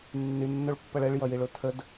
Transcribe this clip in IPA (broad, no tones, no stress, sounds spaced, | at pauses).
nː y nː o ɭ pː ʌ ɭ ɛ ɭ j ʌ j i ɭ o tʰ ə d